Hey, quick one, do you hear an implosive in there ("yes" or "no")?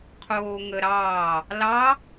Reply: no